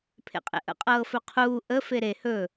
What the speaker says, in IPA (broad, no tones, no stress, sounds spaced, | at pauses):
pʰ ḛ qʼ ḛ ʔ ə̰ qʼ ɤː f ɵ qʰ uː ʔ ə f e ɾ e h ɵ